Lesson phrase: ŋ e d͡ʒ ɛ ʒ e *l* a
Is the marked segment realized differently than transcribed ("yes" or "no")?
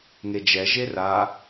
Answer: yes